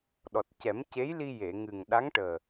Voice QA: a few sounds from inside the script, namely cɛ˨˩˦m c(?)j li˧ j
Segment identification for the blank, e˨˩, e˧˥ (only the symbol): e˧˥